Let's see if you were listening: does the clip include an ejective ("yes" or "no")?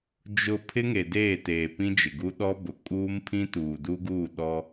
yes